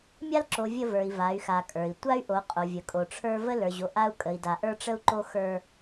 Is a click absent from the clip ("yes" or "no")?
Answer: no